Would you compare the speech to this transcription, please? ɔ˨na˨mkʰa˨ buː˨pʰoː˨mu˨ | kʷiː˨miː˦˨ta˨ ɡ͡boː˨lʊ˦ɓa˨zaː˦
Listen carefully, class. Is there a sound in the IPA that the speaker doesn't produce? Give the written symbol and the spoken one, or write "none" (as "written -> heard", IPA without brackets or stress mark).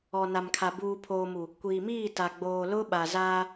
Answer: none